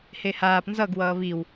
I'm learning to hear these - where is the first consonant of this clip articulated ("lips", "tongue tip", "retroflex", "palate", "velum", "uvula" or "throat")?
throat